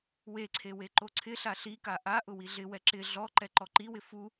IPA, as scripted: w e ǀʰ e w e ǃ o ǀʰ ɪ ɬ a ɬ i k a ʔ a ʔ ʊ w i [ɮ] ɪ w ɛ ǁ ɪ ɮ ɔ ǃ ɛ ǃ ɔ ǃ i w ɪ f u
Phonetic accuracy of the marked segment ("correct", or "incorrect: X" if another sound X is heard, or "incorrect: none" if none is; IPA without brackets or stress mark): correct